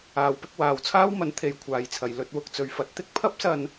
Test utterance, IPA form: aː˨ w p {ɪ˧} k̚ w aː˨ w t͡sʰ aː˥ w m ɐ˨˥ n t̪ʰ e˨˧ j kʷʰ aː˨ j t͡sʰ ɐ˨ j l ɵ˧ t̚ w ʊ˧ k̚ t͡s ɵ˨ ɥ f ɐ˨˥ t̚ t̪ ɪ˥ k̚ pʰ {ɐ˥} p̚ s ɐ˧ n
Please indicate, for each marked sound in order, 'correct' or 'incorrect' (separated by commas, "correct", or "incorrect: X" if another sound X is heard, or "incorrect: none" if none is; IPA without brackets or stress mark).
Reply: correct, correct